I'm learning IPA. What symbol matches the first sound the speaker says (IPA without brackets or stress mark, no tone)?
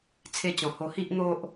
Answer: t͡sʰ